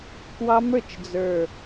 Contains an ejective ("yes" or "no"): no